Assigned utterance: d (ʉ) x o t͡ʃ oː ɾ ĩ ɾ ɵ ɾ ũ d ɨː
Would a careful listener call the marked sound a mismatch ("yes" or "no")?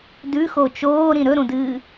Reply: no